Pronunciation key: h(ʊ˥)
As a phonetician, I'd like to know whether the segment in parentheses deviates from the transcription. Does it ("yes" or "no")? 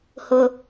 no